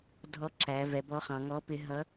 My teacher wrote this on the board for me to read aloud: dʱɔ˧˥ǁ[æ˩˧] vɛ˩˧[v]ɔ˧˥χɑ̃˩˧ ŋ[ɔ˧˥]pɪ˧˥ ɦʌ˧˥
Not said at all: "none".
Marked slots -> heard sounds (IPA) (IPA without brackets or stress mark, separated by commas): æ˩˧, b, ɔ˧˥